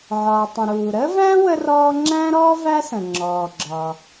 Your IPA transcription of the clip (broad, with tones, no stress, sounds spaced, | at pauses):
ʕ ɒː˩ tˤ ə̃˩ ɾ uː˩ ɾ əː˥ v æ̃˥ w ə˥ r ɔː˥ ŋ͡ǁ æ̃˥ ɾ ɔː˥ v æ˥ s ə̃˩ ŋ͡ǁ ɔː˩ ɡ͡ǁ ɒ˩